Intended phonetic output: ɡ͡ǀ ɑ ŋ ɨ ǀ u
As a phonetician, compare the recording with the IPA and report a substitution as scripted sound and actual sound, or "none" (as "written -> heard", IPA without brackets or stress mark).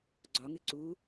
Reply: ɑ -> ɒ